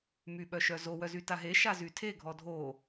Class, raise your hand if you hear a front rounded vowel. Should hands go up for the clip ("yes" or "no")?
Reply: yes